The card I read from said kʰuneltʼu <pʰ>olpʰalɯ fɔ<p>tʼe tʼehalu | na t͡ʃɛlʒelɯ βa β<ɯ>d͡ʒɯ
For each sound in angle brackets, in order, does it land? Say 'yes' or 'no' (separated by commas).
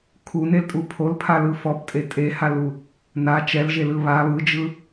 yes, yes, yes